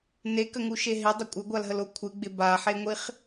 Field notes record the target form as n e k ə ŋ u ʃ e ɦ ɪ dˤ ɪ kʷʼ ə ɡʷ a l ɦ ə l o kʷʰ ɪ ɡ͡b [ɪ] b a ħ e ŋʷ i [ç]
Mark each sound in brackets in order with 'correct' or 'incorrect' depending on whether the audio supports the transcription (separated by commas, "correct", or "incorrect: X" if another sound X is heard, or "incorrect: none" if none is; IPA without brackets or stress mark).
correct, incorrect: χ